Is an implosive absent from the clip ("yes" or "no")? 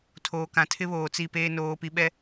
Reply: no